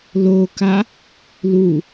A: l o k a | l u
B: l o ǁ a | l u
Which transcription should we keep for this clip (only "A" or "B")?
A